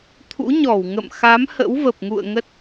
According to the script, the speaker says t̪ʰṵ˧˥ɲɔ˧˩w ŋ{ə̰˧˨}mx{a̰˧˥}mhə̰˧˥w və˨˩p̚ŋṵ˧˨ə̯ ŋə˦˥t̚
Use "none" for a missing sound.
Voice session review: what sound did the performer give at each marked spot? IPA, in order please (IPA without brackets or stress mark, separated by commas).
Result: ə̰˧˨, a˨˦